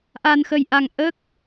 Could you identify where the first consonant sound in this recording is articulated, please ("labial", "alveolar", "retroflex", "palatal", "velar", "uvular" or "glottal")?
glottal